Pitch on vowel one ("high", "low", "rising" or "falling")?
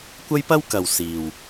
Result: high